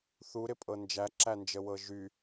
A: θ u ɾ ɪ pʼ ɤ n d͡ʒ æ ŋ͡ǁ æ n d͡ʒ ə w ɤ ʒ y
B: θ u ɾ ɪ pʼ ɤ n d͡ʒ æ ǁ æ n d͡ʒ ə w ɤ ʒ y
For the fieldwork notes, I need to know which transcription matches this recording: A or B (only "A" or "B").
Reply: B